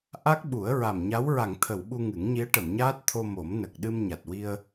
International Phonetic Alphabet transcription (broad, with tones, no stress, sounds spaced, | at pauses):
ʔ a˦˥ k̚ ɓ u˨˩˦ ə̯ ɹ a˨˩ m ɲ a˧˥ w ɹ a˨˩˨ ŋ t̪ʰ ə˨˩˨ w ɓ u˧ ŋ ɨ˨˩˦ ŋ ɲ i˧˥ ə̯ ʈ ə˨˩˨ m ɲ aː˦˥ t̚ t̪ʰ o˧ m o˨˩˦ m n ə˨˩ k̚ ɗ ɨ˧ m ɲ a˨˩ t̚ w i˧ ə̯